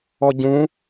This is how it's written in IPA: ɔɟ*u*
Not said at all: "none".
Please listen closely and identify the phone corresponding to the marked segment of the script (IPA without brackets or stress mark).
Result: ũ